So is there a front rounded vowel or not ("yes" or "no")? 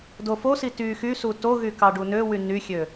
yes